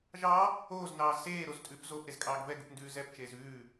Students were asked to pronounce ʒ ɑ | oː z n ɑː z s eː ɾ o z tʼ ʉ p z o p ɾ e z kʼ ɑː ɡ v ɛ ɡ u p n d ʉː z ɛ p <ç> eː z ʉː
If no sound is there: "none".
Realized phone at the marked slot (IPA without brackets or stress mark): t͡ʃ